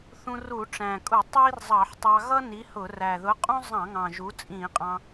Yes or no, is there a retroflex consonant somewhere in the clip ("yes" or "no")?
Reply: yes